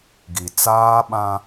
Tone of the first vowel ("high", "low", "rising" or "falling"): low